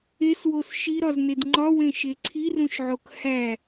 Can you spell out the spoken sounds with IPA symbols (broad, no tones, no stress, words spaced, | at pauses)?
eswos ʃiɾɒzned ŋ͡ǃɒwẽʃe ǀʰirũʃʕok hæ